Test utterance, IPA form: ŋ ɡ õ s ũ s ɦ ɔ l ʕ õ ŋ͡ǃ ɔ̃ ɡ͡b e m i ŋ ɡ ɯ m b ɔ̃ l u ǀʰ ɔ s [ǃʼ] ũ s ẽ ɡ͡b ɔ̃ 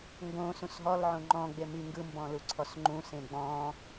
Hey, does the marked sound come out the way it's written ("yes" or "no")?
no